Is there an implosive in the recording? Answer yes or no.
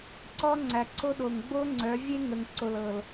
yes